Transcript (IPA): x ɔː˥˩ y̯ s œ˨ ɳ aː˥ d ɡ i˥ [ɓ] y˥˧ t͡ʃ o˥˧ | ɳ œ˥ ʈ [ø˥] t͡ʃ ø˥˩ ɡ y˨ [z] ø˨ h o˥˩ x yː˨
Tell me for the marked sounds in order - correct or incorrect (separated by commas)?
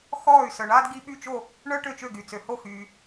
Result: correct, incorrect, incorrect